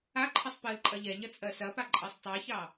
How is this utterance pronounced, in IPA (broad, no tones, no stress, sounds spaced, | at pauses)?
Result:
a ǃʰ ə sˤ p ə l ǃʼ ɐ ʎ ɛ ɲ ɐ t͡sʼ ɜ s ɐ p a ǃʼ ɜ sˤ tˤ a ç ɑ